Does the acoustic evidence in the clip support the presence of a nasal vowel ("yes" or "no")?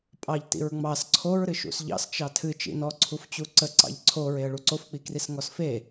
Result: no